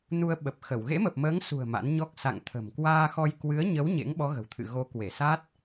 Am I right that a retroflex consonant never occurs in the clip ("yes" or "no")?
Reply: yes